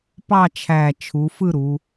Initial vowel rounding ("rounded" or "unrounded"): unrounded